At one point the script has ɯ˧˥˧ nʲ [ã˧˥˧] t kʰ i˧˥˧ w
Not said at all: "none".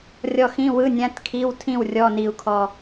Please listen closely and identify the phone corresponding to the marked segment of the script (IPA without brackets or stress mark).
ã˧˥˧